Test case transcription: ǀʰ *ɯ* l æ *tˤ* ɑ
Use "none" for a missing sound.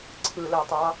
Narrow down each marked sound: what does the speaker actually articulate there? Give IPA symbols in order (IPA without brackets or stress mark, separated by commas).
ɯ, tˤ